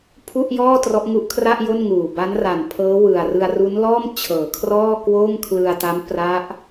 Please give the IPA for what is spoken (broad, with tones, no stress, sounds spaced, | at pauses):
pʰ u˥˩ ʔ j ɔː˥˩ t r ɔ˦˥ ʔ ŋ u˦˥ ʔ kʰ r a˥˩ ʔ j o˥˩ n ŋ uː˨˩ b a˦˥ n r a˨˩ n pʰ ɤː˦˥ w ɯ˨˩ a̯ r ɯ˧ a̯ r u˦˥ n l ɔː˥˩ m t͡ɕʰ ɤː˩˦ kʰ r ɔː˥˩ k w oː˥˩ ŋ kʰ l ɯ˧ a̯ t a˦˥ m p r a˦˥ ʔ